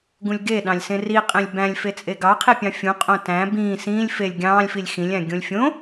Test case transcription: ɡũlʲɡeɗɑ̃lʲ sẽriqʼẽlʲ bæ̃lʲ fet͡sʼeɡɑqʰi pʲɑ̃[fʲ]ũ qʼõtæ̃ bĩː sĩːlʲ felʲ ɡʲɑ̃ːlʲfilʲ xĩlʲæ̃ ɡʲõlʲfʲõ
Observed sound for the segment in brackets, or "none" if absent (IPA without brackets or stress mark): fʲ